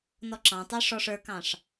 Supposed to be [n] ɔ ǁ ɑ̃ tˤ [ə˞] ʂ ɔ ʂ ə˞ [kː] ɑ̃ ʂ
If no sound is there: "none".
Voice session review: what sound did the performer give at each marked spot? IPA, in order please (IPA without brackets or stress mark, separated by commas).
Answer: n, ə˞, k